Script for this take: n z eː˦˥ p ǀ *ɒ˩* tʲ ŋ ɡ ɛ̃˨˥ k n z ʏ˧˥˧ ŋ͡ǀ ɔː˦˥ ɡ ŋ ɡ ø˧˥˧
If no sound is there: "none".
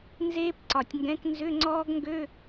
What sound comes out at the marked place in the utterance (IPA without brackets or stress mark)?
ɒ˩